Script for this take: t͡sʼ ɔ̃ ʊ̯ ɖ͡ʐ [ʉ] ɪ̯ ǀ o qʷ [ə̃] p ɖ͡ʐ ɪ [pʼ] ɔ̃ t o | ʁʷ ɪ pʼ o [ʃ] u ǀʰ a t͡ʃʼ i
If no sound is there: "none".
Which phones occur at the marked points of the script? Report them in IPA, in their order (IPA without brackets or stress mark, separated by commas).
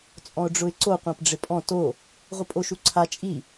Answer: ʊ, ã, pʼ, ʃ